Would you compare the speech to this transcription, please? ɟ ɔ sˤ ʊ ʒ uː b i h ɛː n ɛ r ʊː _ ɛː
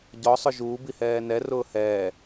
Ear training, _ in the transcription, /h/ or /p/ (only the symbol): h